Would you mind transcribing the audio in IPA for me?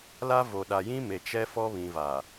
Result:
la˦vo˨ɗa˨ jĩ˦me˨ t͡ʃɛ˦fɔ˦ βĩ˨va˨

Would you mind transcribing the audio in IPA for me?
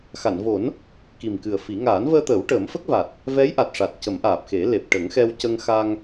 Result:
xa˨˩˨nvo˨˩˦n | ki˨˩mkɨ˨˩ə̯fi˨˩˦ ŋaː˨˩˦nvəː˧t̪əː˨˩˦w ʈəː˨˩˦mfə˦˥k̚va˨˩t̚ | vɛ˧˥jʔa˨˩t̚ʂa˨˩t̚ cə˨˩˦mʔaː˨˩p̚xe˨˩˦le˨˩p̚ ʈə˨˩˦ŋxɛ˧w cə˧ŋxa˧ŋ

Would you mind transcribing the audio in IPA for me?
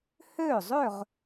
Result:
hø˥˩ zˤø˥˩ʁ

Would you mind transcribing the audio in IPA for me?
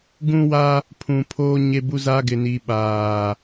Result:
ɡũ˦wa˦ | pʰũ˨pʰoː˦ ɲe˦bu˦ za˦ɡɪ˨ni˨ ɓaː˨

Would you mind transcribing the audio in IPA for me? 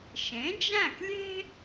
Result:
ʃẽ˩˥d͡ʒæ̃˥˩klʲe̤˥

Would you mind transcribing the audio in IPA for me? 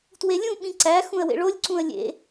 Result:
twelʲũɓĩ ǀæxũə̯ wḛɭolʲǀũə̯ lʲḛ

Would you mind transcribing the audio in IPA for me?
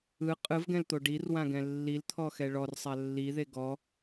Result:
ɯ qʼɯvɡɛ̃lt̪o ɖirwãɡɛ̃ lːilt̪ʰɔxɛ ɭɔrsˤa lːiðe ɡɔ

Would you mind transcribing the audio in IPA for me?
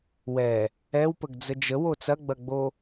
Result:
wɛ | ɛwpəɡ d͡zəd͡ʒəwo t͡sɐɡ͡bɐɡ͡bo

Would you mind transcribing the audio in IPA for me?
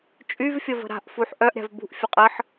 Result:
t͡ʃʼyvfʲəvə̤ ɾa̤ʔfuħ ʔœʔɾʲa̤v bṳʔfʲə qʼəħ

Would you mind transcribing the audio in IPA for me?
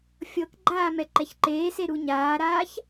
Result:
fʲɤkɡ͡ǃaː mɛǃɛçǃeːse ɾuɲaːɾaːç

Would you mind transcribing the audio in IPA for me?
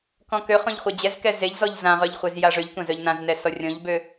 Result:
kɔ̃køχɔ̃ʎ χʷɛd͡ʑɛzkɛ zeʎzɔʎ zãʁœʎ χʷezjaʐøʎtʷãz œʎnãznɛ sɔrʲɔ̃ʎbø

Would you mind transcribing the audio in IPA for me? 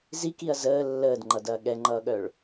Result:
zikiɐ̯ zəː lːəːdŋ͡ǃʌdɐː ɠɛŋ͡ǃʌːɠœɭ

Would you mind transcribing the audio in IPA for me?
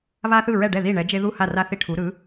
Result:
βa˦ θɯ˥˩ɹɛ˥˩ɖɛ˥˩ ði˥˩ɳɛ˨˥d͡ʒe˦ ðu˥˩ha˥˩ra˥˩θi˥˩ ʈʰu˨˥ ɾɯ˨˥

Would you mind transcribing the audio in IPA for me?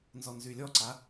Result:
nzɔnzylʲɔǀa

